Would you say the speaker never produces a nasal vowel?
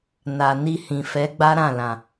no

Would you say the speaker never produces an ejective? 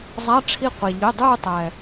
yes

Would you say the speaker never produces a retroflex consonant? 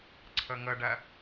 no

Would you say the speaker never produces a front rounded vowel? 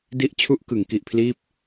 yes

